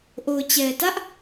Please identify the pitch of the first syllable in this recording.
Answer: low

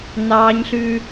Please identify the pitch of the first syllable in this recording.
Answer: high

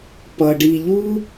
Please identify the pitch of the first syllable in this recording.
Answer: low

